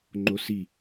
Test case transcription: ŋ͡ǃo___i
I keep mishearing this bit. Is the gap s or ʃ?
s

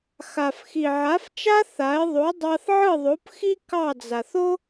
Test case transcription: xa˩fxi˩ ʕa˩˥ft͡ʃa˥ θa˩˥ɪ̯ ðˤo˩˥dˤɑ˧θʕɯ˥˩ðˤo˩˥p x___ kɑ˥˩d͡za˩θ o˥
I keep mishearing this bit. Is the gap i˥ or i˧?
i˥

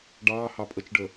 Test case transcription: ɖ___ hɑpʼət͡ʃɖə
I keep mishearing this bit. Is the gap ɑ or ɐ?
ɑ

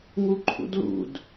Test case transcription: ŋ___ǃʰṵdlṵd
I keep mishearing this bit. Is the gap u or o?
u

